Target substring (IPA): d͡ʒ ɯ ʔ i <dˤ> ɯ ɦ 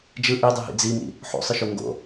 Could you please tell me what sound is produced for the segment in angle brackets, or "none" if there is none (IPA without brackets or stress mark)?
dˤ